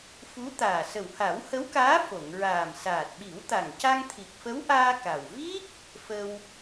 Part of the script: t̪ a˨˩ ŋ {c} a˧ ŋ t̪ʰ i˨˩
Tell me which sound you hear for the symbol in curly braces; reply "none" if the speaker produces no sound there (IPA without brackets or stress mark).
c